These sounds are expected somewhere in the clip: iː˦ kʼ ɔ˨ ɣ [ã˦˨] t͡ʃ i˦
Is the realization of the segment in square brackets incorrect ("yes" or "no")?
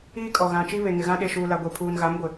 yes